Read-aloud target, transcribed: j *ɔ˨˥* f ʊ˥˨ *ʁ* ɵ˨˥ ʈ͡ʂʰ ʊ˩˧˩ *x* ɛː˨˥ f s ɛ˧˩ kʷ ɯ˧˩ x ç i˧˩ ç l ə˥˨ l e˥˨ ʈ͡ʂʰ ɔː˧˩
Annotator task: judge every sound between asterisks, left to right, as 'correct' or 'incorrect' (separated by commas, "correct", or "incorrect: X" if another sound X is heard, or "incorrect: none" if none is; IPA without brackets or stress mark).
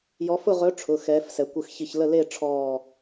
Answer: correct, correct, correct